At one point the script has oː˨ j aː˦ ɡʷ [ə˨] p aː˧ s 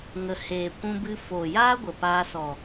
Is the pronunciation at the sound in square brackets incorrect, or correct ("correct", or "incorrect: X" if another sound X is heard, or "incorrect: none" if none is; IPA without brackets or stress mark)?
correct